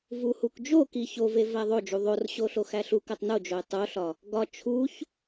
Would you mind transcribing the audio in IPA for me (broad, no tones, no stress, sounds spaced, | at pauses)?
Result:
v u h u k d͡ʒ o k i ç o v e v æ ðˤ o d͡ʒ u ðˤ o r ɕ o ɬ o x æ ɬ u k æ tˤ n o d͡ʒ o ɪ̯ tˤ o ɬ ɒ | ɡ ɒ t͡ʃʰ u ç